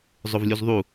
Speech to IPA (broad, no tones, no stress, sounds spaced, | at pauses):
zˤ ʊ v lʲ u z ðˤ u